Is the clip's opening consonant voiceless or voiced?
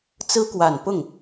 voiceless